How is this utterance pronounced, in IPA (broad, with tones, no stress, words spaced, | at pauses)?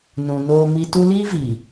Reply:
nũ˨ noː˦mi˦ tu˦ liː˦viː˨